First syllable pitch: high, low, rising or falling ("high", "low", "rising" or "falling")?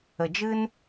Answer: low